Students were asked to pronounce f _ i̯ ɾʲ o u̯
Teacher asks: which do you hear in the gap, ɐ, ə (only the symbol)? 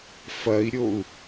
ɐ